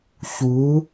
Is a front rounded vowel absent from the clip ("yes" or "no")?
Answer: yes